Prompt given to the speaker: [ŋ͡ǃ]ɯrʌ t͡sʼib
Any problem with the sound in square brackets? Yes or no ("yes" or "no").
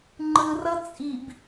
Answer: no